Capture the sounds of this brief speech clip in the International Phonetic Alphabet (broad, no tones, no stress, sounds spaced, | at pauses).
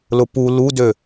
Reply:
l ʊ p u l u d ø